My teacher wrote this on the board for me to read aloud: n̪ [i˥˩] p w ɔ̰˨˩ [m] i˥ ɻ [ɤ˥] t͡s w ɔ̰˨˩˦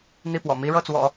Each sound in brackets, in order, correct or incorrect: correct, correct, incorrect: ɤ˥˩

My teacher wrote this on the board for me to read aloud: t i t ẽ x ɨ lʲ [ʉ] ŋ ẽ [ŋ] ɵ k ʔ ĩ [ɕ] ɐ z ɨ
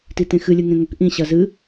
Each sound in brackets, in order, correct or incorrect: incorrect: ɨ, correct, correct

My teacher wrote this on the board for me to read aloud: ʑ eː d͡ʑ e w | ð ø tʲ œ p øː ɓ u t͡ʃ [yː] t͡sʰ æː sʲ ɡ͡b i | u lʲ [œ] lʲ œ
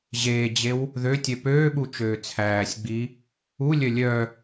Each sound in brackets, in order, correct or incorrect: incorrect: øː, correct

